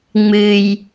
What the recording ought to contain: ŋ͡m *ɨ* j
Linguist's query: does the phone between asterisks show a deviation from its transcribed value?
no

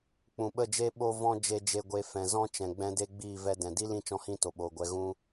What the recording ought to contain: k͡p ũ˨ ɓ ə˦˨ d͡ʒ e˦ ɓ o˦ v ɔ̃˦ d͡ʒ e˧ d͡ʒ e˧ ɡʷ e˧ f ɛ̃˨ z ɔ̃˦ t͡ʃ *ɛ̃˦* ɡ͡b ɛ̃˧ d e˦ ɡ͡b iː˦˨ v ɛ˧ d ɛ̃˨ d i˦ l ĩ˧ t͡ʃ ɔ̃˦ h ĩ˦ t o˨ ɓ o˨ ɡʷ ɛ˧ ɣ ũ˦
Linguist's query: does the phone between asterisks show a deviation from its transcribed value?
yes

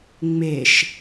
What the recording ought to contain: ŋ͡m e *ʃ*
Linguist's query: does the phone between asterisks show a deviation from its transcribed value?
no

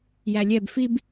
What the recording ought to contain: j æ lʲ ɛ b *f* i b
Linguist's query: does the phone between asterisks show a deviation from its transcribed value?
no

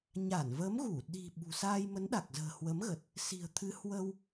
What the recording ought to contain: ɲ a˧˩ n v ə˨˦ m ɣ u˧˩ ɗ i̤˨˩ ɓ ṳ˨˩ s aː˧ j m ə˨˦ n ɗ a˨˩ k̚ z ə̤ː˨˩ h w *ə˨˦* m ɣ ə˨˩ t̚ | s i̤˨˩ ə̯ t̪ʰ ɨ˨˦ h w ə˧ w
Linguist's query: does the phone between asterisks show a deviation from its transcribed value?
no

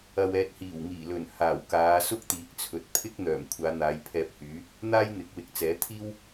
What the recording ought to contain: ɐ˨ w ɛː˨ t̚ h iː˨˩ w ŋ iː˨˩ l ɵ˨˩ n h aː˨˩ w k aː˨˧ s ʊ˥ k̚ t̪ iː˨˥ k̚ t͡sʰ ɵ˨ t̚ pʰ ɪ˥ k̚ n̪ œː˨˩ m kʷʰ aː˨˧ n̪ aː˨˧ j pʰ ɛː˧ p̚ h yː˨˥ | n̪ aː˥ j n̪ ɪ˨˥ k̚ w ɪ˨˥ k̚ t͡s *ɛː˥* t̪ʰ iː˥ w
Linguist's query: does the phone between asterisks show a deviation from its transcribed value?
yes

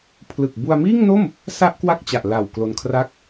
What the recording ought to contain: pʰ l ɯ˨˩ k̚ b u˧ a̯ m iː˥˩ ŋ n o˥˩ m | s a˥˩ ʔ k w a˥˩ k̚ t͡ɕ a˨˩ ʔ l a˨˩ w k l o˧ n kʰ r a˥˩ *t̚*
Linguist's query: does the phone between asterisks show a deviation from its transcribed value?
yes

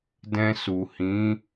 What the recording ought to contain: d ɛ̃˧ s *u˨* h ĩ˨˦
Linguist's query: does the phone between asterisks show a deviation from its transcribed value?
no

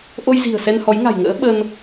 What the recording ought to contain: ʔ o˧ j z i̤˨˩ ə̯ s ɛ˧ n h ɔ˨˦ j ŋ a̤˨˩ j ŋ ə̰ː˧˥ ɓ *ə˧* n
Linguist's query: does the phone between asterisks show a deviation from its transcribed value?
no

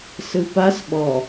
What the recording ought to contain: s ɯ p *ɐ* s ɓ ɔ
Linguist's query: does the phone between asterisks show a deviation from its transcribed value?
yes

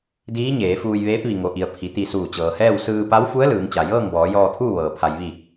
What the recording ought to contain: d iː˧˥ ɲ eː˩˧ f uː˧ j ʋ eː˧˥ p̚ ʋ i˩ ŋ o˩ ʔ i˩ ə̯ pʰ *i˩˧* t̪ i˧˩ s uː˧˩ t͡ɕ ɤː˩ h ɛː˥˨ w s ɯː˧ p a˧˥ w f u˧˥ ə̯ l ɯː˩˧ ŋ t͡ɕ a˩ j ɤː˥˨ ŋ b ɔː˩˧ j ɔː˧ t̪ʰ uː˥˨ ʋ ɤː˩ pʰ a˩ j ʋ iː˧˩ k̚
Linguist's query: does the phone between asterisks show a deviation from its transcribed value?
yes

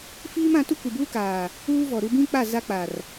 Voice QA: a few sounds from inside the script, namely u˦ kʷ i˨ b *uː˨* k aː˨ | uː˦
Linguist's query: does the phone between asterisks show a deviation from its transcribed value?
yes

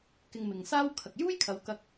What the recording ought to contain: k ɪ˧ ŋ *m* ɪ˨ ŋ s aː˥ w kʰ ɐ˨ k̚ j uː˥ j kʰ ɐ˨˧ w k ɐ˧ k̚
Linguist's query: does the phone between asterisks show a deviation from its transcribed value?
no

